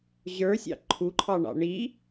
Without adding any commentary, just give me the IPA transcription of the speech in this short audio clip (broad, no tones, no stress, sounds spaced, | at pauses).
ʑ ə˞ sʲ ɑ̰ ǃʰ u ǃʰ ɑ ɳ ɑ̰ ɳ i